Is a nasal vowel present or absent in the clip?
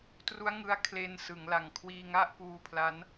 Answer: absent